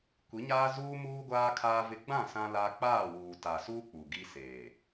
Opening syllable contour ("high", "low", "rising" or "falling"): rising